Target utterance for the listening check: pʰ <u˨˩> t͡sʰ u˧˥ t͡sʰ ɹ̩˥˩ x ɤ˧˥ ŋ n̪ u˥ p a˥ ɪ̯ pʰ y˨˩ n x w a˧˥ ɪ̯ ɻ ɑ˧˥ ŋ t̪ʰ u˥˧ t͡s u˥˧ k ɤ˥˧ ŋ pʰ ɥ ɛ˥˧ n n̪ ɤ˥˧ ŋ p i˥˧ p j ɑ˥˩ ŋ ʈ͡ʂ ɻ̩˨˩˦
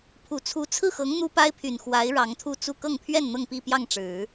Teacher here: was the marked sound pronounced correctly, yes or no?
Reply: yes